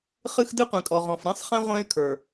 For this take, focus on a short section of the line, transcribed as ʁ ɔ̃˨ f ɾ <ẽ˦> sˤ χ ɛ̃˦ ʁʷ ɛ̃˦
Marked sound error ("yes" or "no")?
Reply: no